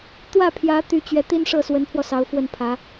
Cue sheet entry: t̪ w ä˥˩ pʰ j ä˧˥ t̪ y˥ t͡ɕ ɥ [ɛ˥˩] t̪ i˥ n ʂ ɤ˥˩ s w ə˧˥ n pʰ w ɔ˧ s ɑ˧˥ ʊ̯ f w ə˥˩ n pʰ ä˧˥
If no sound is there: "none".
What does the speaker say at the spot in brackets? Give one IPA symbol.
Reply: ɛ˥˩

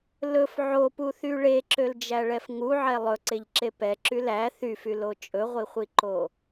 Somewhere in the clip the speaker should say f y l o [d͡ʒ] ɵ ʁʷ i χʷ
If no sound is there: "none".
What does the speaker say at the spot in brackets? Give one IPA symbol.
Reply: t͡ʃʼ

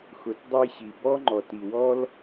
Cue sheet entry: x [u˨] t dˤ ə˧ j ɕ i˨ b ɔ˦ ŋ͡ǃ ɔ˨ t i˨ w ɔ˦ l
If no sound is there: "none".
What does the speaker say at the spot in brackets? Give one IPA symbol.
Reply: ʊ˨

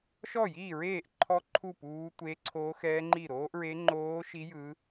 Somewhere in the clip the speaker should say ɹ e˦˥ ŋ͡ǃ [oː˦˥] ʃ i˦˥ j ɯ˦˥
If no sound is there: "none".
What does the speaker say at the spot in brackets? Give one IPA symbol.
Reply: oː˦˥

